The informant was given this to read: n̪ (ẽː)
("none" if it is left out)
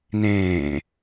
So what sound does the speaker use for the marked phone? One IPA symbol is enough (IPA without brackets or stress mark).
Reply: ẽː